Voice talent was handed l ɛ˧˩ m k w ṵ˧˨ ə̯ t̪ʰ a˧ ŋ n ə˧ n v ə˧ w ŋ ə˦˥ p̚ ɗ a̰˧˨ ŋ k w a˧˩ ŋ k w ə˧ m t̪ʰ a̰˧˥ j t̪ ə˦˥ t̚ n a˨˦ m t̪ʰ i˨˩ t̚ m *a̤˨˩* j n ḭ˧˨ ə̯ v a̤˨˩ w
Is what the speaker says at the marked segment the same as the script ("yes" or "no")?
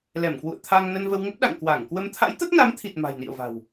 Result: yes